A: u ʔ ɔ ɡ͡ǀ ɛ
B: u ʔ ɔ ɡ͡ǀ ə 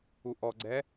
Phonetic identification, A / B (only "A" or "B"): A